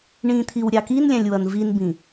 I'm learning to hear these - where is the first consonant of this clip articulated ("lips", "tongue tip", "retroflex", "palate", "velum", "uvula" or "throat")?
retroflex